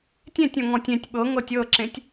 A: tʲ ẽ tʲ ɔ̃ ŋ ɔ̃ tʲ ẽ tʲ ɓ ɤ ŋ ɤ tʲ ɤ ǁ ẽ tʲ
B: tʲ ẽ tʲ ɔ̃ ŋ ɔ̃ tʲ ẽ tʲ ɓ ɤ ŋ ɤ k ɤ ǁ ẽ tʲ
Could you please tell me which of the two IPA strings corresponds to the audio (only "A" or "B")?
A